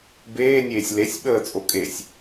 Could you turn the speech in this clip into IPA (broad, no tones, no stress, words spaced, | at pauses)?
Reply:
beːnʲeːsʲ lesʲ ɓəːt͡sʼo kʼesʲ